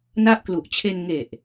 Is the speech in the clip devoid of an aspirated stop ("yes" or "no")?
no